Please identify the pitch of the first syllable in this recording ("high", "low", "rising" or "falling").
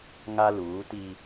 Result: high